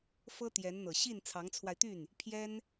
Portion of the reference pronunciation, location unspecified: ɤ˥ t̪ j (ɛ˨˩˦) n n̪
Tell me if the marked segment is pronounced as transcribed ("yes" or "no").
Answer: no